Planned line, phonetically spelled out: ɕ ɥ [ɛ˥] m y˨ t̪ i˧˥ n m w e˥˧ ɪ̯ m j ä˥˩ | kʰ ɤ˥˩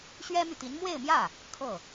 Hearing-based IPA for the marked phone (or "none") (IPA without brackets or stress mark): ɛ˥